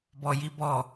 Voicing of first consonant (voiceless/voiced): voiced